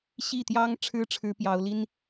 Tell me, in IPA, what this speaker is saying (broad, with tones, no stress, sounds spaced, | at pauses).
ɕ i˥˩ t̪ j ɑ˥ ŋ ʈ͡ʂʰ ɻ̩˥ ʈ͡ʂʰ ɻ̩˥ p j ɑ˧˥ ʊ̯ l i˥ n